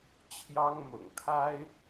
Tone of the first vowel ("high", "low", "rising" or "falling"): high